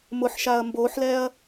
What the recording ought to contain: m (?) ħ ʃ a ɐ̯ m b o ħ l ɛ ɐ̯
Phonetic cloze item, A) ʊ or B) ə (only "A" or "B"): A